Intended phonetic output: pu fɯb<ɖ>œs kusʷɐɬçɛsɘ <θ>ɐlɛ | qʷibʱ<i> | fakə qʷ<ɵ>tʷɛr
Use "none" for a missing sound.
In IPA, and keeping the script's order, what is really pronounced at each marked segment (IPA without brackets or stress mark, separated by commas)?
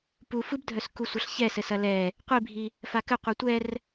dʱ, s, i, œ